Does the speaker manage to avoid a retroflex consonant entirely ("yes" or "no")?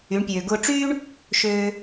no